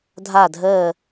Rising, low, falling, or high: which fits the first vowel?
falling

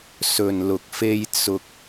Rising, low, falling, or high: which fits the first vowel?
low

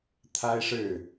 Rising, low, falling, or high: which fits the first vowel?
high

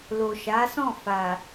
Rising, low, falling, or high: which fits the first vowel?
low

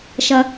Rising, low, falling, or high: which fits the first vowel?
low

